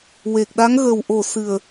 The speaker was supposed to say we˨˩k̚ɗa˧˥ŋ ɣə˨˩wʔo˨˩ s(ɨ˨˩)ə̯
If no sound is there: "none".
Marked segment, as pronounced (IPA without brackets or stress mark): ɨ˨˩